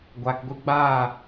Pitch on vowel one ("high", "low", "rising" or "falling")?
low